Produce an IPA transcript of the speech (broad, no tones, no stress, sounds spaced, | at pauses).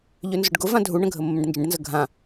ʎ ø n z ʊ ɖ ɡ ʊ v ã dʱ u ɳ ə̃ ɡʱ ə mː ə̃ ɖ n d͡ʒ ə̃ ɖ n z ə ɡʱ ã